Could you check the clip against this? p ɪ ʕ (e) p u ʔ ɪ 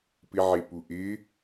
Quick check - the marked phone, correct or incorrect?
correct